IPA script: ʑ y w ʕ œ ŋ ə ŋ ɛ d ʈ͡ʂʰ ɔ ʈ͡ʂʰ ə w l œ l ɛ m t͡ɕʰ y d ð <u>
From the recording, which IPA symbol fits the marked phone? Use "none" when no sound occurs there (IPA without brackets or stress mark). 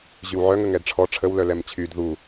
u